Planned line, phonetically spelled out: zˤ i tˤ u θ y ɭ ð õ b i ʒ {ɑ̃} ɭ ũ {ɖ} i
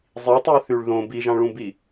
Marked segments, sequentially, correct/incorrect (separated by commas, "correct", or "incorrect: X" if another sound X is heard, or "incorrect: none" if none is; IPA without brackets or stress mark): correct, incorrect: b